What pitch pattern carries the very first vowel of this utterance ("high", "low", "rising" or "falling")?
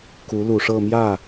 rising